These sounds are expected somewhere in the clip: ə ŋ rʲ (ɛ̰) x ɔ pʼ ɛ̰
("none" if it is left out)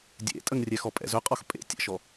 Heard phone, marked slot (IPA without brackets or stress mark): ɛ